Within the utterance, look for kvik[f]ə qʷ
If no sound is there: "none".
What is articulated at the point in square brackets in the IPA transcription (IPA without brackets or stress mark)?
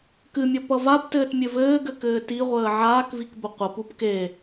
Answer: b